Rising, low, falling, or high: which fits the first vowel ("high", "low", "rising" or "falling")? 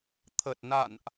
low